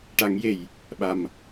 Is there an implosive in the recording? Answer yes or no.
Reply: yes